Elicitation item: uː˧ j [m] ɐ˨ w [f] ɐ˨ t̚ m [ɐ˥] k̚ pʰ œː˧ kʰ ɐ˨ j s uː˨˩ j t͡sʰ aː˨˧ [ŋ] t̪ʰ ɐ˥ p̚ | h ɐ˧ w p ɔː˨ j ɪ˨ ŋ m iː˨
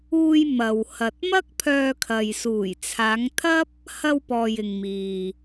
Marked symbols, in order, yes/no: yes, no, yes, yes

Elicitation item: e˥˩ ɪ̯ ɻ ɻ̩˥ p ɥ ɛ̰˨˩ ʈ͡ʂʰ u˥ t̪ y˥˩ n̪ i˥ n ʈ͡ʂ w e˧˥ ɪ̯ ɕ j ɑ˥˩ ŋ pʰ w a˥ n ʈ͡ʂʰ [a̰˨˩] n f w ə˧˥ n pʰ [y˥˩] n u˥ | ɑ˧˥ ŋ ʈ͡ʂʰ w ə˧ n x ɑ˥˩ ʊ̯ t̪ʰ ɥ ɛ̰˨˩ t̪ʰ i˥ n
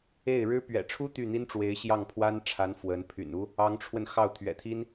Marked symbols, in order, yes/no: no, no

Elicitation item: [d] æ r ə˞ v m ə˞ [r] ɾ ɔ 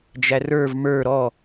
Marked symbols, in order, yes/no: no, no

